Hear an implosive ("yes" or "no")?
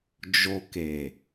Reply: no